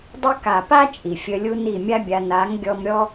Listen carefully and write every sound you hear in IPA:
dˤə˦ ka˨pa˦ t͡ʃʼi˨fʲə˧lʲu˦ni˦˨ mʲa˦bʲa˧ na˨˦ŋɡʲɔ˧mɾʲɔ˦

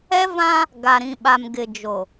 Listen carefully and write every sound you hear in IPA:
ɛ˦vã˦ | ɡa˨ɾĩ˨ ɓa˨mɡɪ˨d͡ʒo˨

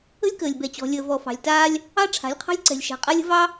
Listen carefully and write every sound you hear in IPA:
ə̤˦lʲkəː˨lʲ bɛ˨t͡ɕɔ̤˨lʲəː˨ vɔ˨fɑ̤˨lʲtaː˦lʲ | ɑ˦ ʈ͡ʂʰa̤˨˦lʲqʰɑ̤˦lʲǀɛ̤˨lʲʃa̤˨ qʼa˦lʲə̤˦vɑ˦

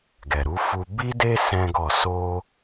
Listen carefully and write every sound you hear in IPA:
ɡɛ˨ɾu˨˦fu˧ bi˦de˦ sɛ̃˦ɡɔ˦˨ so˧

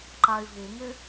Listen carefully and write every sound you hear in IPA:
ǃay̯vuŋɪ

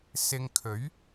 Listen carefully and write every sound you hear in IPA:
sɪ˧ŋkʰɵ˨˥ɥ

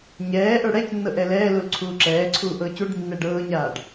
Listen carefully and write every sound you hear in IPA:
ɲɛːʔə˞ ɽɛcnːɤʔ ɛlɛː lulǀʰuːǁɛːǀʰuː ʔɤːcuɖ nːɛɖɤːɲaːɖ

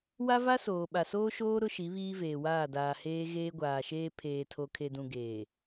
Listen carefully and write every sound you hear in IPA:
wa˦va˦ soː˨ɓa˨soː˦ʃoː˦ ɾʊ˦ʃi˨˦ βiː˦veː˨waː˦˨daː˨ heː˦ɣeː˦ɡʷaː˨ʃeː˦ pʰeː˨tʰo˨kʰe˨dũ˨ ɡeː˨

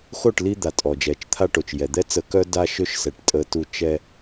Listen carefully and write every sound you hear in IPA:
xo˦˨ʈ li˦d̪a˨tʼɔ˨d͡ʒɛ˨t͡ʃ t̪ʰa˦ʈo˨t͡ʃjɛ˨ d̪ɛ˦t͡sə˨kœ˦ da˦ʃø˦ʃsɛ˨ʈ tʼə˦tu˦ t͡ʃɛ˦

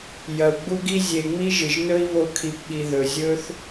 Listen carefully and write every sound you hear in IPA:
jɐ˨u̯ɡ͡bu˧ɡi˧zʲe˨ ŋ͡mi˦ʒɨ˨ʒnɵ˦i̯βo˧ kʰi˨pɓi˨ ðɵ˨zʲɵ˦θ

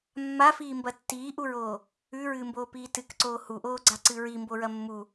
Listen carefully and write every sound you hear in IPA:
mːafiːmbɐ tːiːʔuɹoː | ʉɹɨːmboːpiː tɨkǀoː huʔoːɡ͡ǀaǀɨ ɹimboɹɐ mːu

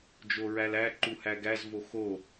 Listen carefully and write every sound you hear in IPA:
d͡ʒoɹælæ ǃuhæɡæz voxo

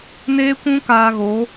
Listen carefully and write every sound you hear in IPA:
neː˦kʷũ˦ kaː˧ɣo˨˦

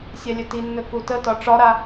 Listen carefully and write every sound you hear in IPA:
sʲɛlʲɵtinːɵ kutətɒ ʈ͡ʂɒɾa

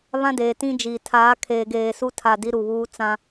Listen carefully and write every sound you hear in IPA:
βã˦deː˨tĩ˦d͡ʒiː˨ tʰaː˨˦kʰeː˨ɡeː˨su˦ tʰa˦˨di˦ɾu˨βuː˦ t͡sã˦

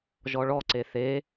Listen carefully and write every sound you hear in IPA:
ʒɔɭɔ ǀeθe

